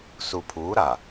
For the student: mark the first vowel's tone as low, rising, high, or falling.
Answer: low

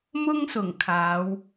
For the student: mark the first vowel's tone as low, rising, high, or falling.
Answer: high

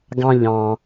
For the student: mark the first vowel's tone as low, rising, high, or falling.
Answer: low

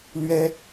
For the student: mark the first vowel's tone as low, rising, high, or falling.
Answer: high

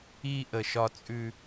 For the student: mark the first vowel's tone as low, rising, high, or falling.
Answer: high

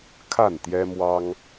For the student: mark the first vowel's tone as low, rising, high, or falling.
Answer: falling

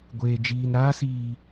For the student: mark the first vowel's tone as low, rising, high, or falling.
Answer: low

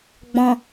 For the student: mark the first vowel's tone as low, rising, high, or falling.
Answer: low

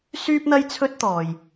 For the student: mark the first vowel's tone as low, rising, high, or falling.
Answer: high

